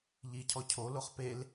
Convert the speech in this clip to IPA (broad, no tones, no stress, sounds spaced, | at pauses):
ʎ i cʰ ɔ cʰ o l o χ p e l